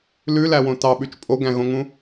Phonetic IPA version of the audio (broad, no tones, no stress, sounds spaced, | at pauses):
l ʉ l æ w õ t ɑ ɓ ʉ t͡ʃ pʼ o ɡ æ̃ ɣ õ ŋ ũ